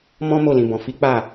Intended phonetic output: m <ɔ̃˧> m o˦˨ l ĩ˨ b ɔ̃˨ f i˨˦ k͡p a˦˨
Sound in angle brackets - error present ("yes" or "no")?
yes